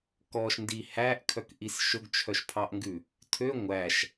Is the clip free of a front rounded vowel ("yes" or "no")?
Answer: no